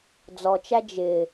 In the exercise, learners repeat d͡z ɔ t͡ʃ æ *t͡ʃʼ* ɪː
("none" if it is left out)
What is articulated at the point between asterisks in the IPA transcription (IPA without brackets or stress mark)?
d͡ʒ